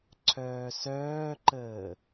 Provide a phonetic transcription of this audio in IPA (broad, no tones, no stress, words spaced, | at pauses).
ǀʰœːsœːǃəː